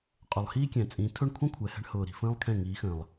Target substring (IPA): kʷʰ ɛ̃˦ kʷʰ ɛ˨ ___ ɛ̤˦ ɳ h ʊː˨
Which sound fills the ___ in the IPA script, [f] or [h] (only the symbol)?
h